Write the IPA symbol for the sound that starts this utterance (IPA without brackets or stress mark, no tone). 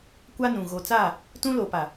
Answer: kʷ